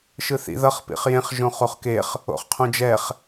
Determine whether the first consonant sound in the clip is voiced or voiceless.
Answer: voiceless